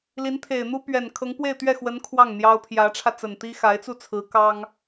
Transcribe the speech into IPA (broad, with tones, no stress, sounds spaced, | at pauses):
l i˧˥ n t̪ʰ e˨˩ ɪ̯ n̪ u˥ p ɥ ɛ˨˩ n kʰ ɤ˧˥ ŋ p w e˥˧ ɪ̯ t̪ ɥ ɛ˥˩ x w ə˧˥ n kʰ w ɑ˥˩ ŋ n̪ j ɑ˥ ʊ̯ pʰ j ä˧˥ ʈ͡ʂʰ ä˧ t͡s ə˨˩ n t̪ i˥ x a˧˥ ɪ̯ t͡s u˥˩ t͡sʰ ɹ̩˧˥ k ɑ˥ ŋ